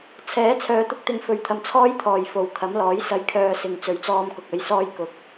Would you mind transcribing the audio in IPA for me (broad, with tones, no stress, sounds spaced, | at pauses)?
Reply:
t͡sʰ ɛː˨˥ t͡sʰ œː˨˧ t̪ ʊ˧ k̚ t̪ ɪ˧ ŋ f ɵ˨˧ ɥ t̪ʰ ɐ˨ m t͡sʰ ɔː˥ j t̪ʰ ɔː˨˩ j f o˨ w kʰ ɐ˨˥ m l ɔː˨˥ j s ɐ˧ j kʰ œː˧ s ɪ˨ ŋ t͡s ɵ˨˧ ɥ t͡s ɔː˧ m k ʊ˨ k̚ ɐ˧ j s ɔː˧ j k ʊ˨˥ k̚